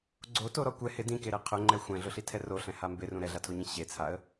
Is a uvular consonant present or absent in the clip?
present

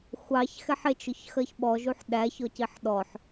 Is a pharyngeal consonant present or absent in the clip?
present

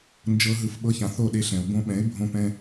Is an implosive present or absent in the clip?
present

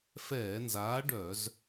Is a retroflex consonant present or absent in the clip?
present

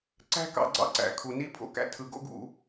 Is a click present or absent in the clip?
present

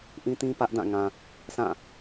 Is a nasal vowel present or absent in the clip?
present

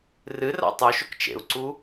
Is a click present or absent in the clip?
present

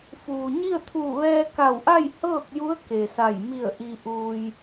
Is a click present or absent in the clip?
absent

